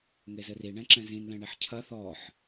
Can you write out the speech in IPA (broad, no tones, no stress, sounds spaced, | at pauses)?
ŋ e z ɘ r i ɳ ɛ̃ ǁ ɛ̃ z ĩ n l ɛ̃ ɳ i ħ cʰ ɐ θ ɔ ħ